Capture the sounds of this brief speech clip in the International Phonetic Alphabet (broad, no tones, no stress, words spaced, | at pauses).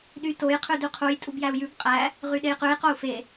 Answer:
ɗy toj qʰʉdʉqʰuj tʼubjæu̯jʉb qʼæ | ʁyɗejqʉj qou̯fe